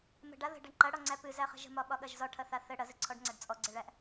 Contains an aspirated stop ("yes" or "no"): yes